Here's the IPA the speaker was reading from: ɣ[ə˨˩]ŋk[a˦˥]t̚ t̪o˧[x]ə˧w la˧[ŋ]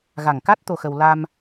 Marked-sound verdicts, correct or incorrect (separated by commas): incorrect, correct, correct, incorrect